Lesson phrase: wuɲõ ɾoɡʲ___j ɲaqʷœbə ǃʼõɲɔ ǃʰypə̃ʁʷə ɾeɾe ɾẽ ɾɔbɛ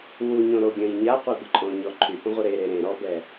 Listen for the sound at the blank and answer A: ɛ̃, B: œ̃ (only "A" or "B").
B